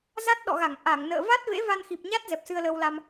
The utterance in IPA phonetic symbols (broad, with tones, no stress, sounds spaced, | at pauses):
z a˦˥ t̚ ɗ ɔ̰˧˨ ɣ a˧˩ ŋ ʔ a˧˩ ŋ n ə̰ː˧˨ v a˦˥ t̚ v ḛ˧˥ v a˧ n x i˨˩ p̚ ɲ a˦˥ t̚ z ɛ˨˩ p̚ s ɨ˧ ə̯ l əː˧ w l a˧ m